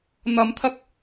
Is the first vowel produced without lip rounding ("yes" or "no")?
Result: yes